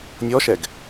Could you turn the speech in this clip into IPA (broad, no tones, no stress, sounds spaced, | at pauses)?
nʲ ɔ ʃ ɛ ɡ